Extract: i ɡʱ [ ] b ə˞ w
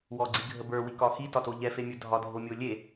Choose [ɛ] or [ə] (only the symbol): ə